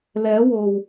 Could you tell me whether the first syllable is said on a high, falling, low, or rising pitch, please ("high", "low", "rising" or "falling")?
rising